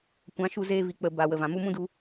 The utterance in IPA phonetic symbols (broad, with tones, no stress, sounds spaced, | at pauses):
kʷ ã˨˦ ʃ u˧ z eː˧ v i˨ k͡p ə˨ b a˨ w ə˨ v ã˨ m u˧ m ũ˦ d u˧